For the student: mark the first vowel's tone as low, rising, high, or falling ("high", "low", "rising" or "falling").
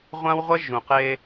high